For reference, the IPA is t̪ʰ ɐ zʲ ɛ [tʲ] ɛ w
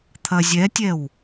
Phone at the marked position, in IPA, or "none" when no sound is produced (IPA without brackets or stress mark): tʲ